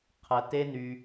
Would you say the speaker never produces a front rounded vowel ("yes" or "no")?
no